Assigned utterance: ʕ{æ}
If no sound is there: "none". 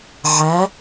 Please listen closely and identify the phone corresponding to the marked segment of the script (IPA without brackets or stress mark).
æ